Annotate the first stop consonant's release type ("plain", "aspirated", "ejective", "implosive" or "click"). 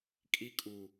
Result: ejective